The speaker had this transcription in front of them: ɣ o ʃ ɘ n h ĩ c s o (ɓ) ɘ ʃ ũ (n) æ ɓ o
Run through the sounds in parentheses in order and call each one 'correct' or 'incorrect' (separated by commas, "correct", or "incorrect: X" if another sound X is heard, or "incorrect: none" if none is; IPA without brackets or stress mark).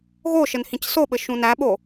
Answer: correct, correct